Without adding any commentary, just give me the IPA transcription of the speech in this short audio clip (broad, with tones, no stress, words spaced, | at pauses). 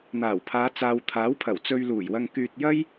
n̪aː˨˩wpʰaː˨˧ t͡saː˨wt̪ʰaː˨˥wpʰɐ˨˩w t͡sɵ˧ɥluː˨˩jwɐ˧ŋ kyː˧t̚jɐ˥j